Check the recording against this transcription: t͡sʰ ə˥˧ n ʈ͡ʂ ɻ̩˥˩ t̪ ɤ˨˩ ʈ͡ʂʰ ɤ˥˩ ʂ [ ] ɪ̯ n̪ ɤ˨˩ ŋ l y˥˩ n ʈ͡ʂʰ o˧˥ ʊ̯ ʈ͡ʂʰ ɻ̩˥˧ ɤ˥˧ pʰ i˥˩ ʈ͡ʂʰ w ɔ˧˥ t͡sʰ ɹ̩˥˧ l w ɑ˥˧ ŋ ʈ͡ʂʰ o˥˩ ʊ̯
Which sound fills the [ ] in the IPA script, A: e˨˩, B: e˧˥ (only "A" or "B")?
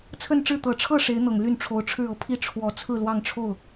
B